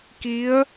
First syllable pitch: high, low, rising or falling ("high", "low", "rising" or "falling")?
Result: rising